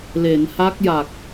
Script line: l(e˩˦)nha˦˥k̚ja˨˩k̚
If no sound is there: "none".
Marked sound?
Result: e˩˦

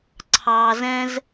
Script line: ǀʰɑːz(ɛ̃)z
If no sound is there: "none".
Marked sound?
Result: ɛ̃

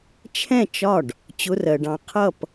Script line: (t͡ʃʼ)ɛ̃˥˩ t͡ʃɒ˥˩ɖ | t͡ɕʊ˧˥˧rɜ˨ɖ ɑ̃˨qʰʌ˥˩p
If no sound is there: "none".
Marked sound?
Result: t͡ʃʰ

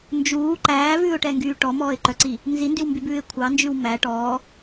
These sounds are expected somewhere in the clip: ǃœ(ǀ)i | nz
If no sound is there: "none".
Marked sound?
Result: ǀ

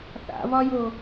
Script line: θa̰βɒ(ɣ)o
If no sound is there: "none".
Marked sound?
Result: j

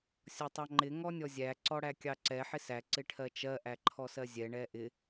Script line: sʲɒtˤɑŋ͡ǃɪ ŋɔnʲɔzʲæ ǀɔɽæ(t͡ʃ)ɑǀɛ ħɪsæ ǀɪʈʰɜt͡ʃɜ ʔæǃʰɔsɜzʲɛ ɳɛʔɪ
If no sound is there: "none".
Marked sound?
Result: kʲ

